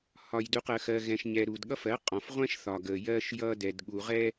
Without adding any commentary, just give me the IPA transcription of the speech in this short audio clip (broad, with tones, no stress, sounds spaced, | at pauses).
h ɒ˨ j d u˨ q ɜ˨ x ɜ˨ ɣ ɛ̃˨ ʃ ɲ ɛ˨ ɾ u˨ d ɠ ʌ˦ f ɜ˨˦ qʼ ɔ̃˨ f ʁʷ ɛ̃˦ ʃ θ ɒ˨ ɡ ə˨ j ɜ˦ ʃ j ʌ˦ d ɛ˨ d ɠ u˨ ʁ ɛ˦